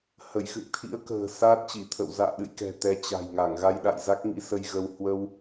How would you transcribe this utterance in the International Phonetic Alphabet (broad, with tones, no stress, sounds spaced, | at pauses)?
h ə˧˩ j x ɨ̰˧˨ ŋ t̪ʰ ḭ˧˥ ə̯ k ə̤ː˨˩ s aː˦˥ t̚ t͡ɕ i˧˩ t̪ʰ ə̰˧˨ w z a̰ː˧˨ ɗ ɨ̰˧˨ j k ɛ̤˨˩ t̪ ɛ˨˦ t͡ɕ a̤˨˩ j ŋ a˧˩ ŋ ɣ a˧ j ɗ a̰˧˨ j z a˦˥ k̚ ŋ ḭ˧˥ s ə˧ j ɣ ə˧ w h w ə˧ w